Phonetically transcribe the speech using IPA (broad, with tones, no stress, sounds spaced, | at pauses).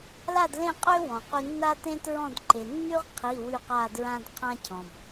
l a˥˨ d l ẽ˥˨ qʼ ø˥ w ɔ̃˩ q y˧ nː a˥ t ẽ˥ t ɹ ɔ̃˥˨ d ǃ e˩ nː y˥ ʁ qʰ i˩˧˩ w y˧˩ q a˧˩ d ɹ ã˧ d qʰ ã˧ cʰ ɔ̃˩ b